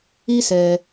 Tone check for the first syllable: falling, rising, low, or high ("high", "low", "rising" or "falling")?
high